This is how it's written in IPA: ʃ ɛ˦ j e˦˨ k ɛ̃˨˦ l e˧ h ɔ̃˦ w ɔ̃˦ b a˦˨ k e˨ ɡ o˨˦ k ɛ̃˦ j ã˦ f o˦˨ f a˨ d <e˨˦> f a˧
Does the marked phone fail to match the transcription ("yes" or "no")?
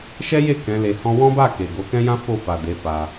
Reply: no